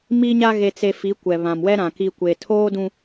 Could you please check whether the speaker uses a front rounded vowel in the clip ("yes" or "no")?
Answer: no